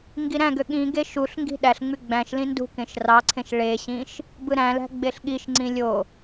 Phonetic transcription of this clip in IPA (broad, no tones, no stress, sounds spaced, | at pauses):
ŋ ɡ i ɾ æ̃ ɡ ø ɠ ĩ ɡ e ʃ u ɬ ŋ ɡ i̤ ɗ æ ɬ ŋ͡m y ɡ͡b æ̃ ʃ l ĩ n d ṳ k ẽ ʃ r ɑ ǀʰ ẽ ʃ ɭ e ɕ ĩ ʃ | b ɯ ɾ æ̃ l æ̤ ɡ͡b e ɬ ɠ i ʃ ŋ͡ǀ ĩ lʲ o